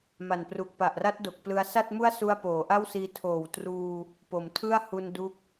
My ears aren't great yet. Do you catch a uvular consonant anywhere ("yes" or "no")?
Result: no